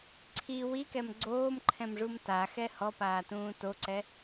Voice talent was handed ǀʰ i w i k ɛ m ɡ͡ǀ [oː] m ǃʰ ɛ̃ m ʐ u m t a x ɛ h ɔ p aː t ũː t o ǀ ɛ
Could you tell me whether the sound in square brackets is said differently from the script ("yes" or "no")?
no